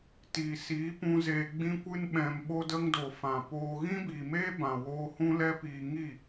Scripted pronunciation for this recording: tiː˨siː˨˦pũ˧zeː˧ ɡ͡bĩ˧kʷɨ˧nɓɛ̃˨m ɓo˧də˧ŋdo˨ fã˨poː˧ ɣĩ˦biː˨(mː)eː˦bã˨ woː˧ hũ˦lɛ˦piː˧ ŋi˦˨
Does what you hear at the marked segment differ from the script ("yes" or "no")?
yes